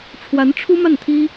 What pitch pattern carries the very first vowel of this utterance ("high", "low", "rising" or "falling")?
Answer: rising